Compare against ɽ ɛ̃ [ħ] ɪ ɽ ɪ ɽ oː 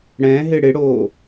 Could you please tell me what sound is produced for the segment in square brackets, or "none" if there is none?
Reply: ɦ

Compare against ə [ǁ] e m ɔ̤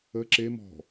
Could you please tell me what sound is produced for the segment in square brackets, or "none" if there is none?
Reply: ǁ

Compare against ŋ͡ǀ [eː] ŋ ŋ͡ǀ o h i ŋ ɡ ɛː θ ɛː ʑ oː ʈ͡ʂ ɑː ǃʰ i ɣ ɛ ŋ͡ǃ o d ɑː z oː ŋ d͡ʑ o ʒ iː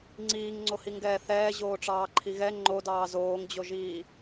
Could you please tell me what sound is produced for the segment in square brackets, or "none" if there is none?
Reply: iː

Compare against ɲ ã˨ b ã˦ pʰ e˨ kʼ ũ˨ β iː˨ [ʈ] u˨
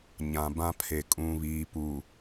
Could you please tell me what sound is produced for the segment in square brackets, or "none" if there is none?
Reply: p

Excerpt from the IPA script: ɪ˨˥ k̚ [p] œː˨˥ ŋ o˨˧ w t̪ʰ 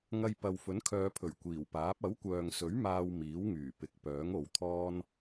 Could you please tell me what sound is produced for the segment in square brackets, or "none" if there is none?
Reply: p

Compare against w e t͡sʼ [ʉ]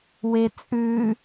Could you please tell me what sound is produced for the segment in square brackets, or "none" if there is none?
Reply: ʉ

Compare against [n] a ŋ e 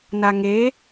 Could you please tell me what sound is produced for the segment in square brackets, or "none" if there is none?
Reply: n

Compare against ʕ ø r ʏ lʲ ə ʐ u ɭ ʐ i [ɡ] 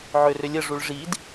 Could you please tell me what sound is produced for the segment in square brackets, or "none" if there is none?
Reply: d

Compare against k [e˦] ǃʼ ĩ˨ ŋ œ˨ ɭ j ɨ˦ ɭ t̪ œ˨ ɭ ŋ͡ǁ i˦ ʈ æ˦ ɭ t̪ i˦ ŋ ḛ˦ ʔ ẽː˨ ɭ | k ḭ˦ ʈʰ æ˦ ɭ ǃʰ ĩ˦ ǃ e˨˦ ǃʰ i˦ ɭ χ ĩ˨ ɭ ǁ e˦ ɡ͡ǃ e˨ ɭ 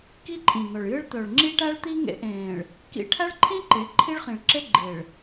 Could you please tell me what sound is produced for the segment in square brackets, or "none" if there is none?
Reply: i˦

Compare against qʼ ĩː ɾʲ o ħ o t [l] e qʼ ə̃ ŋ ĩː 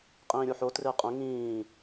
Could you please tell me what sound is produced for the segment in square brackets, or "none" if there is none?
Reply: r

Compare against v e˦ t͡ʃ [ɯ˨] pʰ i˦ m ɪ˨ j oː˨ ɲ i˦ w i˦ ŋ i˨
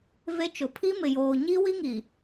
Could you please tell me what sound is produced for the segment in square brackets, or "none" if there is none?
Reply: ʊ˨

